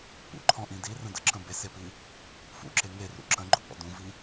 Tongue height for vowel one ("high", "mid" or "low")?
high